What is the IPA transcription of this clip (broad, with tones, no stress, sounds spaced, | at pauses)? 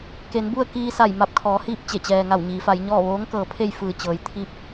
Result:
k e˩˧ n b u˥˨ ə̯ k iː˧ s a˧˩ j m a˧ p̚ kʰ ɔː˩˧ h iː˥˨ p̚ t͡ɕ e˧˩ t͡ɕ ɛː˩ ŋ a˧˩ w ɲ iː˩˧ f a˩˧ j ɲ ɔː˥˨ ʋ oː˧˥ ŋ k ɤː˩˧ pʰ e˥˨ j f ɯː˧˩ t͡ɕ ɤː˩ j t̪ʰ i˧ p̚